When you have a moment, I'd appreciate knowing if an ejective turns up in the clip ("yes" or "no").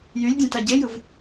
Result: no